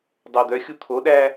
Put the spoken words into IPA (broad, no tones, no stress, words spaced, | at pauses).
dˤod̪œxʲu t̪ʰoɗæ